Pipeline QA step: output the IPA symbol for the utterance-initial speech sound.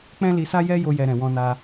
k͡p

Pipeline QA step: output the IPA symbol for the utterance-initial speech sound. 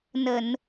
n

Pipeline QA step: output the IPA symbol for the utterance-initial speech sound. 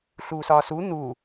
ɬ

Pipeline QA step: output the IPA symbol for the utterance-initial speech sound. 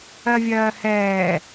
ɜ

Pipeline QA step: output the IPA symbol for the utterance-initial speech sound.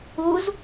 u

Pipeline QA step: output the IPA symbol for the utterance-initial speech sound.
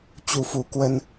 t͡ɕ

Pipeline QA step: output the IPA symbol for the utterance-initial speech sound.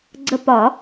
ɡ͡ǀ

